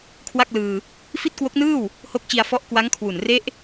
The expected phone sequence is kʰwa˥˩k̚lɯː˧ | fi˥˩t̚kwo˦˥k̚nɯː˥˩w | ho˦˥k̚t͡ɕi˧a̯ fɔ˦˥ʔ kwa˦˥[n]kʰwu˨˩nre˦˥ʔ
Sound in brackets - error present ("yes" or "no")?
yes